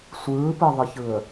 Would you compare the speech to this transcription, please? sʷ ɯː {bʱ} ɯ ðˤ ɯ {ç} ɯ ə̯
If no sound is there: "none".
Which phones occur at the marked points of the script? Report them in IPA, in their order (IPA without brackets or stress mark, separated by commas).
p, ç